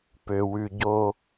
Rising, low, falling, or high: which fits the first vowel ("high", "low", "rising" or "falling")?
low